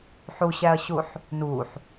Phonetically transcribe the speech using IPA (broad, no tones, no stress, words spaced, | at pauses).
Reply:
ħuɕæɐ̯ɕuħ | nuħ